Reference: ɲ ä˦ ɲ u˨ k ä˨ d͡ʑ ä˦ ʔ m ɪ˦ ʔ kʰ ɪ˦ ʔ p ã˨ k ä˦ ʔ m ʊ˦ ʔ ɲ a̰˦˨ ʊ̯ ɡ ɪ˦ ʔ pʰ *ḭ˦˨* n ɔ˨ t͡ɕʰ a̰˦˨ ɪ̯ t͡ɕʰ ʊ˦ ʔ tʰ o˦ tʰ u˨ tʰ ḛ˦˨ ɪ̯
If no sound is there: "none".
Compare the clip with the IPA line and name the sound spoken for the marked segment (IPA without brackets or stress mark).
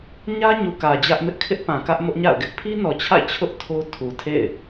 i˦